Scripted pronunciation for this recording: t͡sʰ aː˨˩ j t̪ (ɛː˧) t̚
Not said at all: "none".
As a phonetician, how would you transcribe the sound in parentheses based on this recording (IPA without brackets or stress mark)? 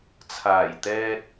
ɛː˧